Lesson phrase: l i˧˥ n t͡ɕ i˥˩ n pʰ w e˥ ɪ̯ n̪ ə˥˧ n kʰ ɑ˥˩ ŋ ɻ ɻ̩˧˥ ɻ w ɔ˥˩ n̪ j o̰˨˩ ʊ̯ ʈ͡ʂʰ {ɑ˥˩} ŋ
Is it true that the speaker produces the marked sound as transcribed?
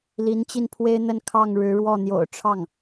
yes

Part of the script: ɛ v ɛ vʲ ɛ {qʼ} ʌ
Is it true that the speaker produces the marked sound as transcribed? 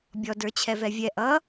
no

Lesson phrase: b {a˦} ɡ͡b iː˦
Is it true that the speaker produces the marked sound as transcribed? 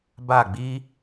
no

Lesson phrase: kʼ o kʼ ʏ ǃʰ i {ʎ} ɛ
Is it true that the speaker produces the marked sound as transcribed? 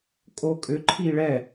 no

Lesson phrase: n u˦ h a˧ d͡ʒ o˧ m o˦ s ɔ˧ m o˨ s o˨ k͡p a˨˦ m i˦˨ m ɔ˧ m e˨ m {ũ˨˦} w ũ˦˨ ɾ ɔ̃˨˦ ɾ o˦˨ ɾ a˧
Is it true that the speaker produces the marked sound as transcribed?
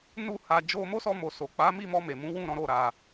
yes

